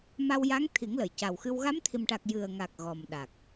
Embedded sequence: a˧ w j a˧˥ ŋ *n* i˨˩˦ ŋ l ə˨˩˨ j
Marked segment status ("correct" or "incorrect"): incorrect